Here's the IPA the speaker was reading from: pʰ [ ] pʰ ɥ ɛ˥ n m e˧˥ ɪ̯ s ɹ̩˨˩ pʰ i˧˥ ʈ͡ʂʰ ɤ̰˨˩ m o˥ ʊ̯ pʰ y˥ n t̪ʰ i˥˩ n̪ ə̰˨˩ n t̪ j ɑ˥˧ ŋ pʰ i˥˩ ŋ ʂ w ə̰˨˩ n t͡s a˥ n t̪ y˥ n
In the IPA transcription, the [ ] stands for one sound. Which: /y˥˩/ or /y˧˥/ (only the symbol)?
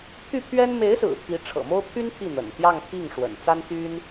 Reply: y˥˩